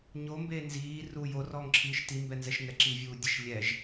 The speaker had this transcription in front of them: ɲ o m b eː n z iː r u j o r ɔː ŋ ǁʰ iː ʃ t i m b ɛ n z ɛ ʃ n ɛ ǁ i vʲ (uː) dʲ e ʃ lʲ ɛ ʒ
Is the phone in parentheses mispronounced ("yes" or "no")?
no